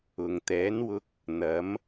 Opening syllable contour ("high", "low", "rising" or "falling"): low